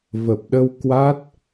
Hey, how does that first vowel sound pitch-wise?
low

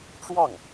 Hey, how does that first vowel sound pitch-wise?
falling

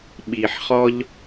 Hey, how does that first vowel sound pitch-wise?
low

